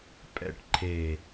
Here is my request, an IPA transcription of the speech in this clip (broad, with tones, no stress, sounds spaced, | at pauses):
pʼ ɛ̰˨ ʈ ǃʰ e˨